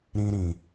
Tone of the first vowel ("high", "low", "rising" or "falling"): high